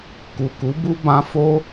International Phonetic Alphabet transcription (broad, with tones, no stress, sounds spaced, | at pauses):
k u˨ k u˨˦ b u˦ b ã˧ f o˦